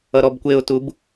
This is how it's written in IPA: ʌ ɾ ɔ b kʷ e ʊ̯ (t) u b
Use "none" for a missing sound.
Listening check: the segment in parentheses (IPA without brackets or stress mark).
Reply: t